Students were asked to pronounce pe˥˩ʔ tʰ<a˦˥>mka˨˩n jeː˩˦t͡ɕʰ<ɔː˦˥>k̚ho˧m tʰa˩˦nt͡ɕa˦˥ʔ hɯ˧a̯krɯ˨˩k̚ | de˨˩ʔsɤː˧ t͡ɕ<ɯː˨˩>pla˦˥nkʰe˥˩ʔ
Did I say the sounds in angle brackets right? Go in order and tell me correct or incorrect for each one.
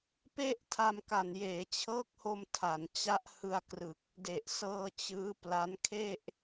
incorrect: a˧, incorrect: ɤː˦˥, incorrect: ɯː˦˥

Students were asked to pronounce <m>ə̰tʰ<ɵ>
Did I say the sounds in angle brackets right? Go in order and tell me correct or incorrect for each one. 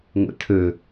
incorrect: ŋʷ, correct

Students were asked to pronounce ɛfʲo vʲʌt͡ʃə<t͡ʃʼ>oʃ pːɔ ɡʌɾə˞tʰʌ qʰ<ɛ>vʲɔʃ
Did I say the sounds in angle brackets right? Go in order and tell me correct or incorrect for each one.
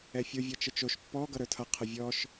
incorrect: t͡ʃ, incorrect: ə

